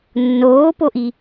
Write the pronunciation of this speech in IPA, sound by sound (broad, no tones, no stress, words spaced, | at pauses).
nːoːpoʔi